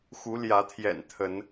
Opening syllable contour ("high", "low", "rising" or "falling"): rising